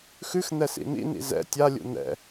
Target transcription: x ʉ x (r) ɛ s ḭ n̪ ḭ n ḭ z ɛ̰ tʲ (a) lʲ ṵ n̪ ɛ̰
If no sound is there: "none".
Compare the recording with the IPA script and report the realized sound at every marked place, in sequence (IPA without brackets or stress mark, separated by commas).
n̪, a